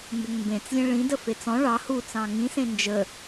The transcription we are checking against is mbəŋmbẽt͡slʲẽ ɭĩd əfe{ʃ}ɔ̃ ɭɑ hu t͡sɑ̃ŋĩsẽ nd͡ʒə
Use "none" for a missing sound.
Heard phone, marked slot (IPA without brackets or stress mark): t͡s